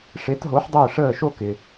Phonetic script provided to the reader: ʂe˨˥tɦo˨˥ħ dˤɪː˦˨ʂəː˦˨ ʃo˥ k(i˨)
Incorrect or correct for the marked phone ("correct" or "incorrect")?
incorrect